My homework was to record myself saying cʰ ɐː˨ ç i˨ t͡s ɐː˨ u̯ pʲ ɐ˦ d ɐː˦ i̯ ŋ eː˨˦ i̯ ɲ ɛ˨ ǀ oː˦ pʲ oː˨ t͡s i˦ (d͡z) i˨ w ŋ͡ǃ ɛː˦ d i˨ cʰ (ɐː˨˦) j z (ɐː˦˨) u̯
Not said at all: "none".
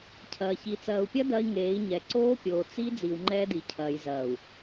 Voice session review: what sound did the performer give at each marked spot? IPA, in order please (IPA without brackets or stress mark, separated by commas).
d͡z, ɐː˨, ɐː˨